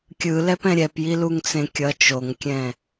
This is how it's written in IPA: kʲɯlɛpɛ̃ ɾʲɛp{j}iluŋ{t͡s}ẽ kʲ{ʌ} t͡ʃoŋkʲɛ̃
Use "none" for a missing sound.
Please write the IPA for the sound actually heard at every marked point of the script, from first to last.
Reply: j, t͡s, ʌ

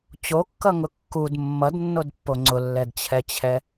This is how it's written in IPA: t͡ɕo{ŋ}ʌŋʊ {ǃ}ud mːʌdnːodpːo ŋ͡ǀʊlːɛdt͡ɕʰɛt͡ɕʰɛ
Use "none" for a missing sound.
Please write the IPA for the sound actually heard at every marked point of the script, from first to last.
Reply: kː, kː

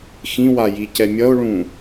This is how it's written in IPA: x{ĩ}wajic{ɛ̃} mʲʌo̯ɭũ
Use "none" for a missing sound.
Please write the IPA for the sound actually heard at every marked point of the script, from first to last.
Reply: ĩ, ɛ

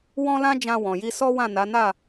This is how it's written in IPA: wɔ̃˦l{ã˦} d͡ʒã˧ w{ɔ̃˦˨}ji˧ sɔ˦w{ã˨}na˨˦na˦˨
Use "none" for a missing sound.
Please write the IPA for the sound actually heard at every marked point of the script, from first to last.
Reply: ã˦, ɔ̃˨, ã˦˨

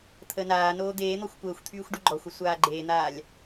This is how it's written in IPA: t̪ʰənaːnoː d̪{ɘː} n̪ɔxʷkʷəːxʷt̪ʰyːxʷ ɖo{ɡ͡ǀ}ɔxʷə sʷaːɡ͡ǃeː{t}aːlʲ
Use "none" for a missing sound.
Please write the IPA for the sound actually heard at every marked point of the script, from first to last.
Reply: eː, ɡ͡ǃ, n̪

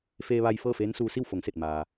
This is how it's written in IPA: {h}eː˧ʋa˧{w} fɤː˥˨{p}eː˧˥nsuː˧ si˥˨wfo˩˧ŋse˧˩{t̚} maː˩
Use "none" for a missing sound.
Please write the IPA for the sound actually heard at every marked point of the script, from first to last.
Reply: f, j, f, t̚

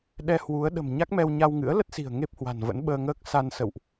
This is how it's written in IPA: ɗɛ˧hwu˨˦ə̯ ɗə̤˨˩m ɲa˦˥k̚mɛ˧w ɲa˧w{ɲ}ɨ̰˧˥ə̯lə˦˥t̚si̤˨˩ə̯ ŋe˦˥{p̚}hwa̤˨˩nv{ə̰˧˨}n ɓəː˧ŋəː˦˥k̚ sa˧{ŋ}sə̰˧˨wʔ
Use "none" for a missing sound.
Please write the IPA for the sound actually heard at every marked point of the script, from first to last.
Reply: ŋ, p̚, ə̰˧˥, n

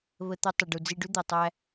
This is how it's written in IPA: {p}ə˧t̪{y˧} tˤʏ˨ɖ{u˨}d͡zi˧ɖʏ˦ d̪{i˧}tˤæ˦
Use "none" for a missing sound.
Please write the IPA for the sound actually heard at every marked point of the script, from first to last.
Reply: β, ʏ˧, u˨, i˧

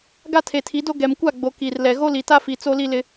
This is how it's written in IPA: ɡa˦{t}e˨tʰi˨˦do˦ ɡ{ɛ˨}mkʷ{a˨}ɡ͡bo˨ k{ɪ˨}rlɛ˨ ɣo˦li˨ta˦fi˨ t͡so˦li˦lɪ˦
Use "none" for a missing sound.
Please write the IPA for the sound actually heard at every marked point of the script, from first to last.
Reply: tʰ, ɛ˨, a˦˨, i˨

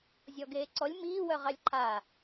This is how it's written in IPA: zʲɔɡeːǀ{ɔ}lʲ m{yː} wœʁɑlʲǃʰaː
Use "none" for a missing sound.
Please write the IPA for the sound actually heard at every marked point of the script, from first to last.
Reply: ɔ, iː

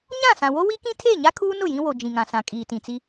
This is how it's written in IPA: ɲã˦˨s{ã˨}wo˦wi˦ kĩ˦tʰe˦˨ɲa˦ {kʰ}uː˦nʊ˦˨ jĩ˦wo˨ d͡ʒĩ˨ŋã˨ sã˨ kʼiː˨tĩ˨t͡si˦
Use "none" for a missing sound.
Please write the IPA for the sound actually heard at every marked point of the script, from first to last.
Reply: ã˨, kʰ

